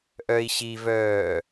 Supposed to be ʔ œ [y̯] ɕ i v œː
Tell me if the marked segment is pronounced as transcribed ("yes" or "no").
no